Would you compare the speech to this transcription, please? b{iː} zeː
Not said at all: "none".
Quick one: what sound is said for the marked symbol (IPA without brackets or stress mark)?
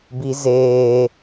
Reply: i